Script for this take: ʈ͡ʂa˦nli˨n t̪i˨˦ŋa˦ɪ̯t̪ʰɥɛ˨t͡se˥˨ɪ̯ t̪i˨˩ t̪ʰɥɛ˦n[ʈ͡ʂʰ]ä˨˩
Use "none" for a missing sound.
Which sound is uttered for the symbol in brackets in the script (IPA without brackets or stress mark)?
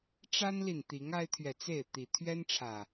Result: ʈ͡ʂʰ